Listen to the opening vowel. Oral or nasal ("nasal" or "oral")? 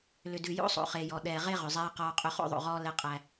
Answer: oral